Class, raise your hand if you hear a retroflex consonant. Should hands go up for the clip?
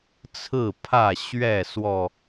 no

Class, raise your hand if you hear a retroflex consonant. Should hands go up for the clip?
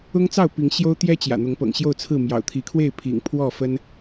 no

